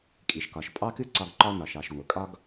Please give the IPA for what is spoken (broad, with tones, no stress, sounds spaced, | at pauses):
kʼ i˩ ʃ k ɒ˩ ʃ pʼ ɑ˥ k ɨ˥ ǀ ɒ˧ ɡ ǃ ɒ˥ n ɒ˩ ʃ ɑ˩ ʃ ŋʷ ə˩ kʼ ɒ˥ ɡ